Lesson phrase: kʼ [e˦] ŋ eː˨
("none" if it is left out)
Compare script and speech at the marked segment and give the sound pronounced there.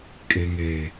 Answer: e˨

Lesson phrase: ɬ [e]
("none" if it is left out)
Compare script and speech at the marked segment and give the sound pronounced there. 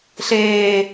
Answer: eː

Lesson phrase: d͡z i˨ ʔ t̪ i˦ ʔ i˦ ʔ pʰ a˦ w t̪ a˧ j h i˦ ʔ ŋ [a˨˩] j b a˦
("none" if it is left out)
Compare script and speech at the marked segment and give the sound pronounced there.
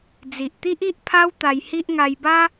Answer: a˧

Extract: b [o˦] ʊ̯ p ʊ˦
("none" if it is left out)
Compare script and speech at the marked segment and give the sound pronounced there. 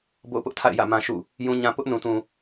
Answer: o̰˦˨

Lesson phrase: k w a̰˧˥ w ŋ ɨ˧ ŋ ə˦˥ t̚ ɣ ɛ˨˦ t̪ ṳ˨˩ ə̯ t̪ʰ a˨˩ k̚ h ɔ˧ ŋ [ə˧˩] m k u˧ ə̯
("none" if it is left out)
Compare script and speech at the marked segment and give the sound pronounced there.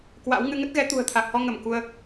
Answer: ə˧˩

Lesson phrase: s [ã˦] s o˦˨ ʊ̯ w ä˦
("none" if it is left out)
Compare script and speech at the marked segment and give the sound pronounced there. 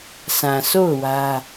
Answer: ã˨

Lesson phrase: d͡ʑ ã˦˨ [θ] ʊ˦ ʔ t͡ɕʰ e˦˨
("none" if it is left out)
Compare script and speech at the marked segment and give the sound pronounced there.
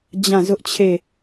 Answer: z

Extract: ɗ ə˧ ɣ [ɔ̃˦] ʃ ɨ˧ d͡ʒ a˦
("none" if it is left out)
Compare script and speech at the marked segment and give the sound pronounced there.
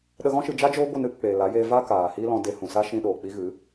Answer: ɔ̃˦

